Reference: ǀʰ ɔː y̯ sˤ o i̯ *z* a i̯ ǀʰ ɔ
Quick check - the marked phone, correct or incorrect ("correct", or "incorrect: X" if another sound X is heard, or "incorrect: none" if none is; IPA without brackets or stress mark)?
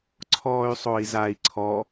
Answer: correct